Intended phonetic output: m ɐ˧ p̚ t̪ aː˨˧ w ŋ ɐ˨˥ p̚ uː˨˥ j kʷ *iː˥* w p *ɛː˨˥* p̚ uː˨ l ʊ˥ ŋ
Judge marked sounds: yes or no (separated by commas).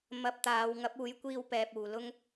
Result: no, no